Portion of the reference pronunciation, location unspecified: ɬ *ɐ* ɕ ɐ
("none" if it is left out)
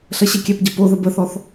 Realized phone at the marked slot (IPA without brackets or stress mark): ɐ